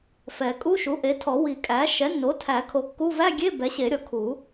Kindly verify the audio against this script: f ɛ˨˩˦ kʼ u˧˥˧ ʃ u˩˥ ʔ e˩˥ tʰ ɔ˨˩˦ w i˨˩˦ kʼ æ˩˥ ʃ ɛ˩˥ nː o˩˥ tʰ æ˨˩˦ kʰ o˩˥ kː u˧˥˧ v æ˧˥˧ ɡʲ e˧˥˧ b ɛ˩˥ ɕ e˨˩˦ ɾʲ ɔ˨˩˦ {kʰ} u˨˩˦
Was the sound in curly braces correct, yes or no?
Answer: yes